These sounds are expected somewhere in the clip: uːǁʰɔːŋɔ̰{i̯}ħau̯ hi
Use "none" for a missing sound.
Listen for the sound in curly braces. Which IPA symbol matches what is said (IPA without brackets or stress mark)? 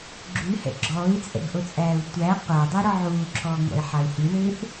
i̯